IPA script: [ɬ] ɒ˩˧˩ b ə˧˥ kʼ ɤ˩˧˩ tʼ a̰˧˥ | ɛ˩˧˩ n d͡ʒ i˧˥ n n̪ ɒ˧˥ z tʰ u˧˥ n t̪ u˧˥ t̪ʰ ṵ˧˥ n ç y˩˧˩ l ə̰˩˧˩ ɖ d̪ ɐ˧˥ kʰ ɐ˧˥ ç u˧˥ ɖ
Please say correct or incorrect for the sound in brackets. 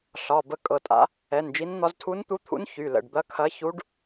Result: correct